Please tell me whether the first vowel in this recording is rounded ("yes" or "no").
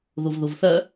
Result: yes